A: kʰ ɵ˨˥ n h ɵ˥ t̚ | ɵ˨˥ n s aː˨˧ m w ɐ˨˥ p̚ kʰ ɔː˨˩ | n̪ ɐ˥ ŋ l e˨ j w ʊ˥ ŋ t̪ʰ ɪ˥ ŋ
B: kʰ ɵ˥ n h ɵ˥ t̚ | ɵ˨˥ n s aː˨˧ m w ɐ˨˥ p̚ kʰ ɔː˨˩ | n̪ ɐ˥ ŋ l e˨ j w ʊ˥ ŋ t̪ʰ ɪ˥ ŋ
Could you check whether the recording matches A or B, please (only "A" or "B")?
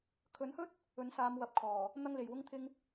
A